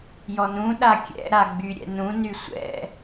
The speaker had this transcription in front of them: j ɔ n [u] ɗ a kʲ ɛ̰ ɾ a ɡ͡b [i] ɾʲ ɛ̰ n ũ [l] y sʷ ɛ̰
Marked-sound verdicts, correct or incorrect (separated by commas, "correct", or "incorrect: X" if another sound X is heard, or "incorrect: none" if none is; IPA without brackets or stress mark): incorrect: ũ, incorrect: y, incorrect: n